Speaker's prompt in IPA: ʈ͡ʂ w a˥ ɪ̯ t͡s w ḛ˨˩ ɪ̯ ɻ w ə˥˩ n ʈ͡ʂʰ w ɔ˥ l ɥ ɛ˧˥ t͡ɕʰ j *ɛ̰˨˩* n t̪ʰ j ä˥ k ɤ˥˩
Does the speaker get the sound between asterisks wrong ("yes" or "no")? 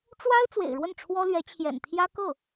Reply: no